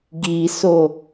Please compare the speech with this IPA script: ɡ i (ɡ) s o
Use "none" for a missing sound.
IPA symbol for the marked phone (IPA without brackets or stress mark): none